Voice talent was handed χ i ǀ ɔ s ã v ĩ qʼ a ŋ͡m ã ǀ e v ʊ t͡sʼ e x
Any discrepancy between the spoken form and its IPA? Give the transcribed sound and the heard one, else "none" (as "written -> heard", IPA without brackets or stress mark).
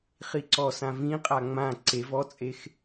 ʊ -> ɔ